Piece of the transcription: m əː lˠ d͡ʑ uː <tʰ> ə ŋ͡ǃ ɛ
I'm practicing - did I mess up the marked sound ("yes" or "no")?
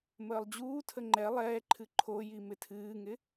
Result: no